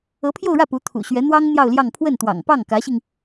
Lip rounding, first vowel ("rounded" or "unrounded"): unrounded